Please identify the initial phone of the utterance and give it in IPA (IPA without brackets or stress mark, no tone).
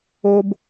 o